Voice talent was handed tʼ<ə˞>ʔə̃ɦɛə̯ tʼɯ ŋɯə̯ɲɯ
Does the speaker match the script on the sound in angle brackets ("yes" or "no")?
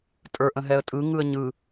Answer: yes